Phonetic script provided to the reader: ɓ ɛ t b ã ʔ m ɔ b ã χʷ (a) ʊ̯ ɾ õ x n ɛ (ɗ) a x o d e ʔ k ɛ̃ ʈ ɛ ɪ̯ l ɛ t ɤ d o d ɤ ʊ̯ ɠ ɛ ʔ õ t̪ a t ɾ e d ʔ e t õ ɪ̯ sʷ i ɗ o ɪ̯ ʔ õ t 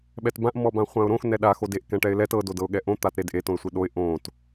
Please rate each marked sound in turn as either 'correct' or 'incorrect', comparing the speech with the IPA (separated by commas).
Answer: incorrect, correct